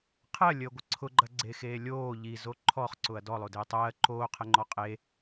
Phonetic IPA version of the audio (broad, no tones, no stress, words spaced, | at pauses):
qʰɜlʲəːɡʷə ǀʰʊɡ͡ǃɐɡ͡ǀexeː lʲoː ʎizo ǃʰɔχǀʊɐ̯ dɔlˠodeː tˤɜː ǃoːqʰəŋ͡ǃɔ qʼe